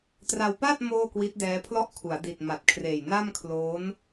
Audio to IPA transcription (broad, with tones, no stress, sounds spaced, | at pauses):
t r a˧ w p aː˥˩ t̚ m oː˥˩ k w i˦˥ t̚ d ɛː˦˥ pʰ l ɔ˥˩ ʔ kʰ u˩˦ a̯ d i˨˩ t̚ m a˨˩ t̚ kʰ r eː˨˩ j n a˥˩ m kʰ l oː˦˥ n